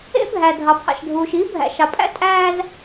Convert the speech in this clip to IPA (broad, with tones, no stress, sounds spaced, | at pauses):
ḛ˦ bʱ æ˨ dʱ ɑ˨ pʰ ɑ̰˨ ʃ dʱ uː˨ ʃ iː˦ bʱ æ̰˨ ʃ ɑ˨ pʼ æ̰˦ tʼ æː˦ z